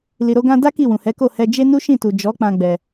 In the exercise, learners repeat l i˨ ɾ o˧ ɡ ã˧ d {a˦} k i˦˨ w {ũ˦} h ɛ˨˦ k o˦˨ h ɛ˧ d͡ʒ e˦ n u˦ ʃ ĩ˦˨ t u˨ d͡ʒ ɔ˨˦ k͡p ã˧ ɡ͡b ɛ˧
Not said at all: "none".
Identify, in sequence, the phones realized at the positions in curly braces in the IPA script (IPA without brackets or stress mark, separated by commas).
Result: a˦, ũ˨